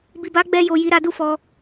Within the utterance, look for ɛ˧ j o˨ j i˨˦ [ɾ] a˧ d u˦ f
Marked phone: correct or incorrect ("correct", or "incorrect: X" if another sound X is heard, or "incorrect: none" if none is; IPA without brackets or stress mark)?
correct